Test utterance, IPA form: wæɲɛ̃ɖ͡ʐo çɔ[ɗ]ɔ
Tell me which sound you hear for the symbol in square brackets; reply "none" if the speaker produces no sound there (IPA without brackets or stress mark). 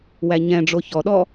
ɗ